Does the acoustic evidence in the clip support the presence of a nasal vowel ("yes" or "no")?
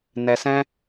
yes